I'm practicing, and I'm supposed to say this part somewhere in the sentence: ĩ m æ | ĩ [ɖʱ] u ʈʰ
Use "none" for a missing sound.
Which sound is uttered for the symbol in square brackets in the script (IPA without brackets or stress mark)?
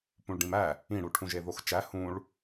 ɽ